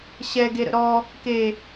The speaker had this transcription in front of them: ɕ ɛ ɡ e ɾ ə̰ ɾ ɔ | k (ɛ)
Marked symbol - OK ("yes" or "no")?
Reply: no